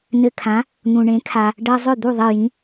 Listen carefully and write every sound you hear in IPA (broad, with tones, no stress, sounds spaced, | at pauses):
n ɘ˧ kʰ ã˩˥ | n̪ ũ˩ ɳ ẽ˩˥ kʰ a˩ | ɖ ɜ˧ zˤ ʏ˥˩ d̪ u˥˩ ðˤ e˥˩ j ĩ˩˥